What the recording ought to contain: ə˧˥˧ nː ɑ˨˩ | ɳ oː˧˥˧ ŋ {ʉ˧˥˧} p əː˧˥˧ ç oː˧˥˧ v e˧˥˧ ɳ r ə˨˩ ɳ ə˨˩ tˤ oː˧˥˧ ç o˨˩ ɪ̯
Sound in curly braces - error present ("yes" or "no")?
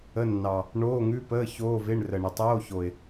no